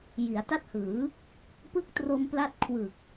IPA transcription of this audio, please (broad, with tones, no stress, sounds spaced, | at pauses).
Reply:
j i˩˦ a̯ t a˦˥ t̚ h ɯː˩˦ | p ɯ˦˥ k̚ t r o˧ m p l a˥˩ t̚ kʰ w ɯ˨˩ k̚